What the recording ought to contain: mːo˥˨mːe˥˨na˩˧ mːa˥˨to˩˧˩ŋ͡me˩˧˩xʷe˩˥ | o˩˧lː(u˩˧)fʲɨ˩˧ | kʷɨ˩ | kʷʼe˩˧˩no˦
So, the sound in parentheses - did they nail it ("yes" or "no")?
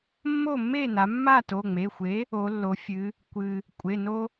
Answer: no